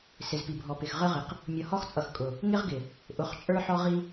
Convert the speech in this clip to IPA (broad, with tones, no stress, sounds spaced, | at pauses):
s ɪ˨ z p i˨ bʱ ɔ˨ p ɪ˨ x ʁ ə˦ ʁ ɪ˨ q | mʲ ʌ˨ h ɔ˦ x t͡sʼ ʌ˨ x kʼ ʊ˨ | ŋ ɪ˦ ʁ ɡ ɪ˨ | ʔ ʊ˨ χ t͡ʃʼ ə˞˦ ħ ɔ˦ ʁ i˦